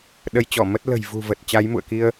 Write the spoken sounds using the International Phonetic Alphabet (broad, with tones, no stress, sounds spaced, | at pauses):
ɗ ə˨˦ j t͡ɕ ɔ˧˩ m ə˦˥ t̚ l ə̤˨˩ j v ṳ˨˩ v ə˨˩ t̚ t͡ɕ a˨˦ j m ṵ˧˨ ə̯ k i˧ ə̯